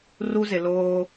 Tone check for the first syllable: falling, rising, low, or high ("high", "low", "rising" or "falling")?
high